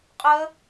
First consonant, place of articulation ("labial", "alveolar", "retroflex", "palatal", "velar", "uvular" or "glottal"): uvular